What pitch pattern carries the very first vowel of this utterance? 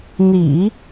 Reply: low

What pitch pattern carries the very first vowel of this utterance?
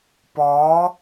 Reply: rising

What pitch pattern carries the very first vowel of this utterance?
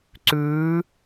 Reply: rising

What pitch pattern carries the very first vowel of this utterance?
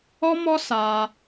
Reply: high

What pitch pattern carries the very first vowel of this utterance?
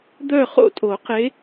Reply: falling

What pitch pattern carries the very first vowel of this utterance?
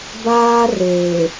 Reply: high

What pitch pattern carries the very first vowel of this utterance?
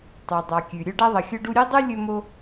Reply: low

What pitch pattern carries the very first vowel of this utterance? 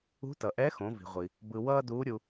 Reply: rising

